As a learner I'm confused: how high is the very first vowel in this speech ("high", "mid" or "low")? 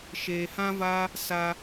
mid